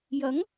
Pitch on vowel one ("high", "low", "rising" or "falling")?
rising